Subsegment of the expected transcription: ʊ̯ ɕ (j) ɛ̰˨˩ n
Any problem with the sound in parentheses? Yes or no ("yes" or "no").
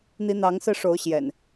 no